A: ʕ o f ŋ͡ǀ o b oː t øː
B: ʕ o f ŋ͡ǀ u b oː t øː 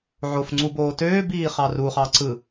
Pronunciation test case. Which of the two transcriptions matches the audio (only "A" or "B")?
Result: B